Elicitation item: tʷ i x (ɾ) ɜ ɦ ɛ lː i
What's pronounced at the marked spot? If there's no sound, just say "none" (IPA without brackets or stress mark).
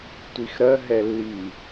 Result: ɾ